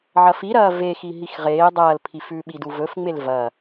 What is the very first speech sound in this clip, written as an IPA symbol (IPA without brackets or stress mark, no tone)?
ʕ